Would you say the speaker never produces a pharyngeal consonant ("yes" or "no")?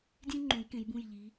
yes